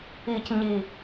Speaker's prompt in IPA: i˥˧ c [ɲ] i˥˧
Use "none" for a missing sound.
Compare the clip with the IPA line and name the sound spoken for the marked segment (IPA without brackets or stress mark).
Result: ɲ